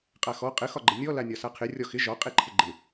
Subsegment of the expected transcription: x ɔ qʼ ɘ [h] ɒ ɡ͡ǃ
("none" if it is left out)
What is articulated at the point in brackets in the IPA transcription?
x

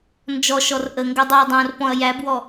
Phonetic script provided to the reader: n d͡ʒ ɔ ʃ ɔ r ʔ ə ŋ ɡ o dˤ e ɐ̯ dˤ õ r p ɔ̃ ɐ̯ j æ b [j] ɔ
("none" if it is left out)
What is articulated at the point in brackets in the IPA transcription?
w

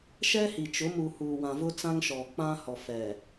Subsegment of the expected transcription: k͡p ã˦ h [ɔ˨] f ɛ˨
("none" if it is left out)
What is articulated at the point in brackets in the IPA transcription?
ɔ˨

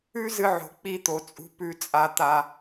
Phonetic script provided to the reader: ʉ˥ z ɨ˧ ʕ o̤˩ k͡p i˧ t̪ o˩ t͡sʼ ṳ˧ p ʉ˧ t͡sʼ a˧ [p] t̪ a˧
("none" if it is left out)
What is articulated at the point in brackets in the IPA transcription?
none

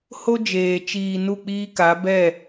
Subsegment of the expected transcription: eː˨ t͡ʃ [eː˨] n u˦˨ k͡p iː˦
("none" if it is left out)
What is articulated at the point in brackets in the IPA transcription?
iː˨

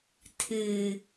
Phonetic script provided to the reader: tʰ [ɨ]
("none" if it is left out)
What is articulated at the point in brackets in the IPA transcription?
ɨ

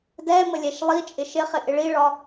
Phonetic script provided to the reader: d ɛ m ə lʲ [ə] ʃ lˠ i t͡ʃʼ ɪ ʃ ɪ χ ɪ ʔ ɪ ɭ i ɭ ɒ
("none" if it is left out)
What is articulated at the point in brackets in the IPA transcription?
ɛ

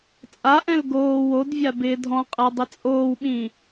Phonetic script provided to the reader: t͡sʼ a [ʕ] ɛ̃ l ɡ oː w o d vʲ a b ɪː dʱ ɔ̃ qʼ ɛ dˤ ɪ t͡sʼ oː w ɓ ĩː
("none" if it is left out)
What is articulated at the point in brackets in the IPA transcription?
ʔ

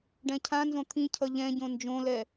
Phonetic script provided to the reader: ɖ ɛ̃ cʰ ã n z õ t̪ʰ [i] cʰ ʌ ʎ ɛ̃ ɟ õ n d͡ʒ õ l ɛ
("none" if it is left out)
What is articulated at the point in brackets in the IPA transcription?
ĩ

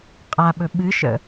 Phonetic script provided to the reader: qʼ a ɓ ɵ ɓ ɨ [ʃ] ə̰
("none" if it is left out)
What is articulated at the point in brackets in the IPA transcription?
ʃ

